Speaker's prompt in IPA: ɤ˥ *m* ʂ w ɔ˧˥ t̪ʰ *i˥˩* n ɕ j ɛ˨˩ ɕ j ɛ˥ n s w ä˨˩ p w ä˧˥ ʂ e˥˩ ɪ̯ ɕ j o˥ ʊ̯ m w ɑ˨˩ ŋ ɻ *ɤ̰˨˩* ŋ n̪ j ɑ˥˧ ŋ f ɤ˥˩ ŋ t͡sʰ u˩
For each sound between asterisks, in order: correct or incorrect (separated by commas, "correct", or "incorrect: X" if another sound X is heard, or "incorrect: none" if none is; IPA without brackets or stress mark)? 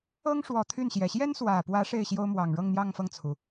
incorrect: ŋ, incorrect: y˥˩, incorrect: ɤ˥˧